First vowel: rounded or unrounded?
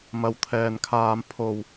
unrounded